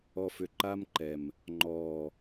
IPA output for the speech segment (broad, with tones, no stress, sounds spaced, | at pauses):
ɔ˨ f ʏ˨ ǃ a˧ m ǃ ɛ˨ m | ŋ͡ǃ ɔː˨